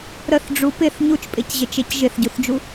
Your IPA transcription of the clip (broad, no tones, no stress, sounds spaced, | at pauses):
ɾ ə θ ɖ͡ʐ u p ɪ θ ɲ u t͡ʃ pʼ ɪ c ʑ ɪ t͡ʃ e c ʒ ɪ θ ɟ u θ d͡ʒ u